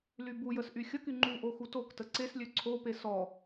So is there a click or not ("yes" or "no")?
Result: yes